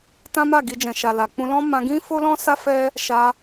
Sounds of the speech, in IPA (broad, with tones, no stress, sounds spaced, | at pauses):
t ã˦ m a˦˨ ɡ i˧ d͡ʒ ɛ̃˨ ʃ a˨ l a˨ k͡p ũ˧ l ɔ̃˦ m ã˧ ɡ ĩ˦ f o˦ l ɔ̃˦ s a˦ f ɛ˦ | ʃ a˧